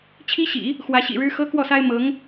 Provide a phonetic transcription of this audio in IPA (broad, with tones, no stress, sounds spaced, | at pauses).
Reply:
t͡ɕʰ i˥ ɕ ḭ˨˩˦ | x w ä˧˥ ɕ ḭ˨˩ ɻ ɻ̩˥ x ɤ˥ k w ɔ˥˩ s a˥ ɪ̯ m ɤ˧˥ ŋ